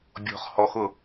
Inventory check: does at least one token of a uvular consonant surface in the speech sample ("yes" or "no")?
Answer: yes